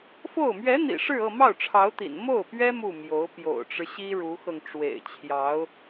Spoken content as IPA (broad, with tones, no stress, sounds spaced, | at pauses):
f o˥˩ ʊ̯ m ɥ ɛ˧˥ n̪ ḭ˨˩ ʂ ɻ̩˥˧ ɤ˥˧ m ɑ˥˩ ʊ̯ ʈ͡ʂʰ ɑ˧˥ ʊ̯ t̪ ḭ˨˩ n m o˥˩ ʊ̯ p ɥ ɛ˥ m u˥˩ m j o˧˥ ʊ̯ p j o̰˨˩ ʊ̯ ʈ͡ʂ ɻ̩˦ ɕ i˥ ɻ u˧˥ x ɤ˧ ŋ ʈ͡ʂ w ḛ˨˩ ɪ̯ t͡ɕʰ j ɑ˧˥ ʊ̯